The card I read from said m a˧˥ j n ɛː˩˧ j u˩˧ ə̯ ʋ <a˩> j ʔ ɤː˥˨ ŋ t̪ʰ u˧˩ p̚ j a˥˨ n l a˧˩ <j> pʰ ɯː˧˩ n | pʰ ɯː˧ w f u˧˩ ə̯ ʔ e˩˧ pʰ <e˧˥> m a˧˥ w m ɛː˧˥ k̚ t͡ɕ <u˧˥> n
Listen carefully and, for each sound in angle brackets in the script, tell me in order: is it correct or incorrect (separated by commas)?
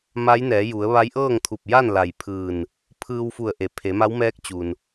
incorrect, correct, incorrect, incorrect